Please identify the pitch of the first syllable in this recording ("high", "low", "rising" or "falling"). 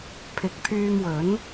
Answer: rising